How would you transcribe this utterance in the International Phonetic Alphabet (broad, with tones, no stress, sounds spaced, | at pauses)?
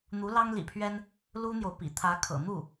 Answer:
n̪ u˧˥ l ɑ˥ ŋ l ḭ˨˩ pʰ ɥ ɛ˥ n | l u˥ n̪ j o˨ ʊ̯ p ḭ˨˩ t̪ʰ ä˧˥ kʰ ɤ̰˨˩ n̪ u˥˩